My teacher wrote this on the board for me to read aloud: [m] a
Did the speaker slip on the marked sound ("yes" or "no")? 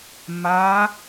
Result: no